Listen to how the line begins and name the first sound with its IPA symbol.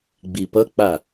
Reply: ɡ͡b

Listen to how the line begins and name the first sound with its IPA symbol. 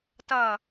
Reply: t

